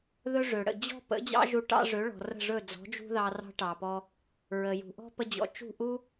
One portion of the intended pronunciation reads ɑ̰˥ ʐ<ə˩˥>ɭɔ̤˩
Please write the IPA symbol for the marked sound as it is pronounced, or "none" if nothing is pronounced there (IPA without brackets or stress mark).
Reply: ø˩˥